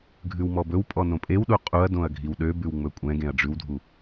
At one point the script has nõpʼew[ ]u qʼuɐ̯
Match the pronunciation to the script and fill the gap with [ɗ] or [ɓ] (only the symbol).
ɗ